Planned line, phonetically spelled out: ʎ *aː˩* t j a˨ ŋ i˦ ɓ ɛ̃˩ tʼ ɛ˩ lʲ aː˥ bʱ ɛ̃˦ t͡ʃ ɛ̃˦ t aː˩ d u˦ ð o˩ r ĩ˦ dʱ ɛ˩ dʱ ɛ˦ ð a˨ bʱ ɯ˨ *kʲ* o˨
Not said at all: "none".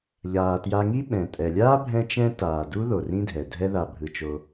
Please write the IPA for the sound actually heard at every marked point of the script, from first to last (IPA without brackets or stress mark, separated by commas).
aː˩, t͡ʃ